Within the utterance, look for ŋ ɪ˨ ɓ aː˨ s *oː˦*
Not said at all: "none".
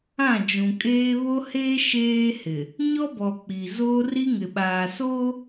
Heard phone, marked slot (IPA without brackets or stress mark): oː˦